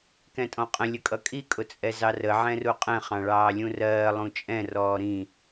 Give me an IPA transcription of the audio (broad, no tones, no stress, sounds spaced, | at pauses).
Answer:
k ɛ̃ tʼ ɔ̃ qʼ ə̃ lʲ ə kʼ ʌ kʼ i kʼ ʊ t͡sʼ ɛ z ɑ r ə ʕ ɛ̃ r u qʼ ɛ̃ χ ɑ̃ ɭ ɑː lʲ ũ r ɜː lˠ ũ t͡ʃʼ ɛ̃ r ɔː ɾ ĩ